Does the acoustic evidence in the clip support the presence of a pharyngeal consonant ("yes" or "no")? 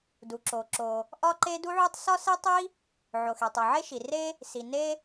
yes